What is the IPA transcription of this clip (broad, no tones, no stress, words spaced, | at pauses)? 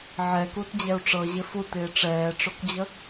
ʕɛkut d͡ʑɛu̯ʈ͡ʂɤʑɪ futɪː ʈ͡ʂɛːʈ͡ʂokd͡ʑə